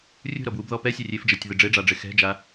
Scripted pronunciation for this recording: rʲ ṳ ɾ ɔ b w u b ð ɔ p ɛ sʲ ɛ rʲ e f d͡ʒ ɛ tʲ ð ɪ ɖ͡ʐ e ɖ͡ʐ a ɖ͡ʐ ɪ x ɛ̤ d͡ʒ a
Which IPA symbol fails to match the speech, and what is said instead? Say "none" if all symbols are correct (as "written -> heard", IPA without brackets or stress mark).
none